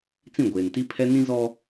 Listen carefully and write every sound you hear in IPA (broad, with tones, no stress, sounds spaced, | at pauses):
t͡s ĩ˦˨ ɡʷ eː˨ n t i˦ pʰ ɛ˦ n ĩ˦ z ɔ˦